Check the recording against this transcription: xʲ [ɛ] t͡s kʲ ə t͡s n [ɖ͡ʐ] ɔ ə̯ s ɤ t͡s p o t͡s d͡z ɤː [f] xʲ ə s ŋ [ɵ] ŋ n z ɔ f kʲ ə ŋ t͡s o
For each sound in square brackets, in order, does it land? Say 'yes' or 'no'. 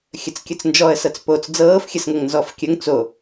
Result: no, no, yes, no

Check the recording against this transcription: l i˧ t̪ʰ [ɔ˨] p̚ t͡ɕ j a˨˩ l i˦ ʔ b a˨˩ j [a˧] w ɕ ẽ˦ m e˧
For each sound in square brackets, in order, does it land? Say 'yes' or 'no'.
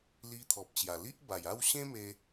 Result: yes, no

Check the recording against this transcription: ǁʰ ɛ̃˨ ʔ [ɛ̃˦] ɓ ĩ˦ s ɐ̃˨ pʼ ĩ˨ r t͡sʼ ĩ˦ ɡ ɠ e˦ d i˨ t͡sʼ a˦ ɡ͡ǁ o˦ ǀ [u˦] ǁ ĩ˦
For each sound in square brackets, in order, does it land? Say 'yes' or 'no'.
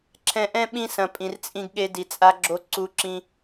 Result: yes, yes

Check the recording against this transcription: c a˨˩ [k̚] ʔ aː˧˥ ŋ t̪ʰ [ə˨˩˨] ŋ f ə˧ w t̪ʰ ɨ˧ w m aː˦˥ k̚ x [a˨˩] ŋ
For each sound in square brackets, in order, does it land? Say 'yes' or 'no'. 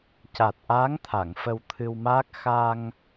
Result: no, no, no

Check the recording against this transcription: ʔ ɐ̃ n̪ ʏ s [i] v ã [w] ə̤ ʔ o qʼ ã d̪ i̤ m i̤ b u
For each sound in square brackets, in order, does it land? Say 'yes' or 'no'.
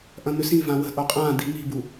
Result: no, yes

